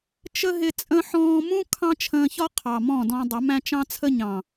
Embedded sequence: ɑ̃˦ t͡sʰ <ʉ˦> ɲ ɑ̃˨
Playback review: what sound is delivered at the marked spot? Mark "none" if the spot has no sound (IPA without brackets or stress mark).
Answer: ə˦